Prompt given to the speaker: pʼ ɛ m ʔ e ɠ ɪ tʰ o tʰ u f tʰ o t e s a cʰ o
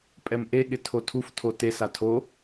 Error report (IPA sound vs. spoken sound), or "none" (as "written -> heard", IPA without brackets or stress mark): cʰ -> tʰ